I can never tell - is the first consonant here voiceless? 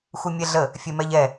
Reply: yes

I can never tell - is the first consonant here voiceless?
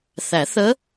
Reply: yes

